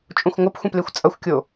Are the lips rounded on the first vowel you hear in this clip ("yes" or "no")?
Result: yes